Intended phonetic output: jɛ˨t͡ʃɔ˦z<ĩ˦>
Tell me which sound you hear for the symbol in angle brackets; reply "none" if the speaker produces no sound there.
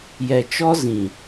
ĩ˨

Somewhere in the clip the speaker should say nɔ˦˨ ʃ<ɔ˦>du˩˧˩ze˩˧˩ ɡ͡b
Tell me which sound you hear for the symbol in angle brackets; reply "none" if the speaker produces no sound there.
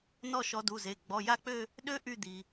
ɔ˨˦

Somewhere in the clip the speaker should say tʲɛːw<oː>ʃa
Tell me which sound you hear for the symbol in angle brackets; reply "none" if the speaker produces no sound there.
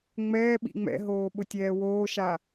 oː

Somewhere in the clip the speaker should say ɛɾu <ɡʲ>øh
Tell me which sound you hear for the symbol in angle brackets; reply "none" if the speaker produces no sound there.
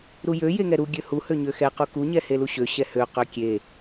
ɡʲ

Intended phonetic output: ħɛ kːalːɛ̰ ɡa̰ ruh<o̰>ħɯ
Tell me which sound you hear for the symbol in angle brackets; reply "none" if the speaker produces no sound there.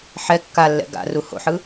o̰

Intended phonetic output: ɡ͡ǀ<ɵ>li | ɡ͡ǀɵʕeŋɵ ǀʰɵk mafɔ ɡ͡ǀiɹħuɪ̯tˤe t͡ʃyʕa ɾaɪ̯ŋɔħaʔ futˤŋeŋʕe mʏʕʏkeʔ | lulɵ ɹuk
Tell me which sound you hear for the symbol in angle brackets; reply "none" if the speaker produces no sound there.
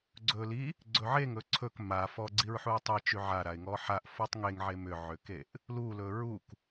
ɵ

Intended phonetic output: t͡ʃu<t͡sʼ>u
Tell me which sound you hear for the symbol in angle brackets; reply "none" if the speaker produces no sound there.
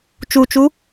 t͡ʃ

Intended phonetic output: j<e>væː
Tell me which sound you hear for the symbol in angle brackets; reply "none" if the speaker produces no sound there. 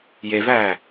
e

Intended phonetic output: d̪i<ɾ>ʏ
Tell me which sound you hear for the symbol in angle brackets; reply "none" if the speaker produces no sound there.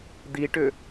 ʈ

